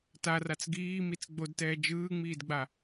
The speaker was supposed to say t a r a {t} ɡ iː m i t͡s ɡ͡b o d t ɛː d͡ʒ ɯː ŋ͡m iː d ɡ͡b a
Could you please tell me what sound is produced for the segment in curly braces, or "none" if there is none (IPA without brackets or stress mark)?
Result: t͡s